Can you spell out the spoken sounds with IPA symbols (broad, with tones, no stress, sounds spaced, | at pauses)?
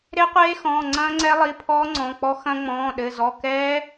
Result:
ɾ e˦˥ qʷ eː˦˥ x ɔ̃ː˩˧˩ ŋ͡ǀ ɐ̃ː˦˥ ŋ͡ǀ ɛ˦˥ lˠ i˩˧˩ pʰ ɔː˦˥ ŋ͡ǀ ɔ̃˩˧˩ k͡p ɔ˦˥ x ɐ̃˦˥ ŋ͡m ɔ̃ː˩˧˩ ɗ ɘ˩˧˩ z ɔ˩˧˩ k ɛː˦˥